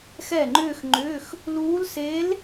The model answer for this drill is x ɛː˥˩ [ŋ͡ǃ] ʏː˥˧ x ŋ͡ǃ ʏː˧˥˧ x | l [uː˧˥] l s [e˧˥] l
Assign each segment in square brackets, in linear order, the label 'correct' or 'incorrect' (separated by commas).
correct, correct, correct